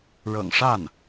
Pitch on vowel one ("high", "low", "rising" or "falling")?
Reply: low